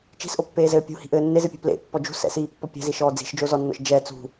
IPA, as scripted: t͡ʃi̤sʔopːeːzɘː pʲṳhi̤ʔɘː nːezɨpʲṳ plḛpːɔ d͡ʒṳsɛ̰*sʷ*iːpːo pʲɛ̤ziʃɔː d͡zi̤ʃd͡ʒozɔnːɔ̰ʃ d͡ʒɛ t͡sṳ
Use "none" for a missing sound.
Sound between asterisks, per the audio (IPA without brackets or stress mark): s